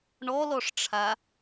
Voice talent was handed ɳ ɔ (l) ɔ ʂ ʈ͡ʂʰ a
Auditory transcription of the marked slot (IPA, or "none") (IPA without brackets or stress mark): l